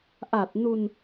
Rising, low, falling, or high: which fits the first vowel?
low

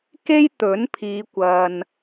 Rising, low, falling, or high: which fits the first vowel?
high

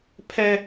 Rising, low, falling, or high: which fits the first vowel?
high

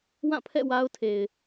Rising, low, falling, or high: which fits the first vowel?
falling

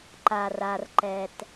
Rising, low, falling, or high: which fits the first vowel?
low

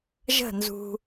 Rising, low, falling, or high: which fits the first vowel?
falling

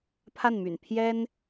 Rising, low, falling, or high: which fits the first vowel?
falling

